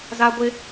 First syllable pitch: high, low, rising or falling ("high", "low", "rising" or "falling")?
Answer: high